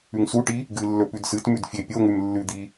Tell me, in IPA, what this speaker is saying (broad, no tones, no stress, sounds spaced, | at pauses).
ʉ ŋ s u ʈ i | ɡ ɨ lː ɵ p ʉ d s ɨ t m ʉ d fʲ e pʲ o ŋ ʉ m lː ʉ d̪ i